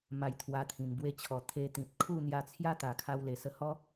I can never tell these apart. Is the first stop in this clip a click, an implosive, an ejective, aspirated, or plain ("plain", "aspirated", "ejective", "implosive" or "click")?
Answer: aspirated